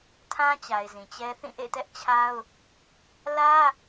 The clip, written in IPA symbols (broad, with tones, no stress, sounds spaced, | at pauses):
tʰ ã˦ t͡ɕ a˨ ɪ̯ z ĩ˨ t͡ɕ ɛ˦ θ ĩ˦˨ ʔ ḛ˦˨ t ɛ˦ ʔ t͡ɕʰ a˦ ʊ̯ | l ä˦